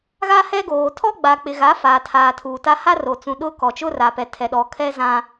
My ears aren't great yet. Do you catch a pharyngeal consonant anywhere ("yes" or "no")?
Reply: no